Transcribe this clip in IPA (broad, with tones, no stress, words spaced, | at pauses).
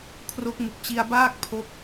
kʰro˦˥k̚mu˨˩k̚ t͡ɕi˧a̯baː˥˩k̚ pʰo˦˥k̚